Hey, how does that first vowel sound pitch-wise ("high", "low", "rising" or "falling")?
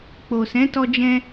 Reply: low